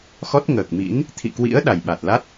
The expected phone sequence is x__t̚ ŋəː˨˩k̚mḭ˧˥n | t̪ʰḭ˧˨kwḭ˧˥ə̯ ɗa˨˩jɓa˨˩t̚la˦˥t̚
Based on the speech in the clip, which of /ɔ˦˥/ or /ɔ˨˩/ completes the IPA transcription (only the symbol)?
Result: ɔ˦˥